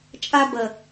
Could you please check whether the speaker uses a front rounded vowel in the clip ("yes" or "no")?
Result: no